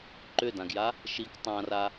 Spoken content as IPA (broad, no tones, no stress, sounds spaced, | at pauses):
ǃ ʏ d ã ɡ j a | ʃ i k tˤ ã r a